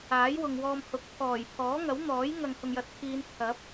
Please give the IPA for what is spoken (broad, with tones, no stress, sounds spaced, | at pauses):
aː˨˥ j w ʊ˨ ŋ w ɔː˧ m h ʊ˨˥ k̚ pʰ ɔː˨˩ j pʰ ɔː˨˥ ŋ ɐ˨˥ w n̪ ɔː˨˥ j ŋ ɐ˨ ŋ h ʊ˨ ŋ j ɐ˨˥ t̚ pʰ iː˨˧ n t̪ʰ ɐ˨˥ p̚